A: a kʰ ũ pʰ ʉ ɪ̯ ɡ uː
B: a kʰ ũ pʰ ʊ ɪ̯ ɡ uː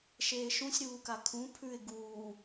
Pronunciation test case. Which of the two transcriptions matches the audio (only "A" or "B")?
A